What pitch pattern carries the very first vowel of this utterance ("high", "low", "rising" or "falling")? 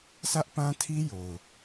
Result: high